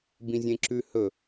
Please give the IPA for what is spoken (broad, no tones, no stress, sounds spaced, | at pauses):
b ĩ zʲ ẽ ǁ ʉ h ɵ